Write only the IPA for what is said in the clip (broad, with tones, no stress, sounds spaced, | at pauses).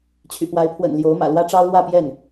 t͡ɕʰ y̰˨˩ p w a˧˥ ɪ̯ pʰ w ə̰˨˩ n l j o˧˥ ʊ̯ m ä̰˨˩ l w ä˥ ʈ͡ʂ ɑ˥ ʊ̯ l w ä˥˧ p j ɛ˥˩ n